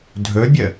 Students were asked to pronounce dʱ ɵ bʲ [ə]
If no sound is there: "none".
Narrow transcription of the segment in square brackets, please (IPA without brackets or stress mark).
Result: ə